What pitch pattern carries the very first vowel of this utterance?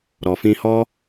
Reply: low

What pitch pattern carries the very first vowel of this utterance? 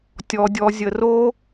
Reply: low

